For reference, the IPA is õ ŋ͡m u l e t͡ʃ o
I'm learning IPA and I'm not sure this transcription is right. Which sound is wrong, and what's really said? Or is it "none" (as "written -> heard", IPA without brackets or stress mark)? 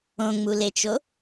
none